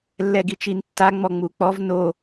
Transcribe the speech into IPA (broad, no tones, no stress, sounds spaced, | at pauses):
lː ɛ ɡ i t͡ʃ i n tː a ŋ͡m ɔ ŋ͡m u k͡p ɔ v n o